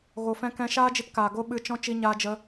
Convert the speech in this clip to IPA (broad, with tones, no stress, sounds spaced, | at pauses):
ɣ o˨ f ɛ̃˧ k ɛ̃˧ ʃ aː˦ d͡ʒ i˧ t k aː˨ ɡ o˦ ɓ ɨ˧ t͡ʃ ɔ̃˧ t͡ʃ i˧ ɲ aː˧ d͡ʒ ə˧